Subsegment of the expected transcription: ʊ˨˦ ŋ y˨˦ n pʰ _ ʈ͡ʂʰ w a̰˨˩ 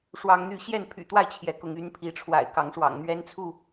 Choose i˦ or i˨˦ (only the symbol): i˨˦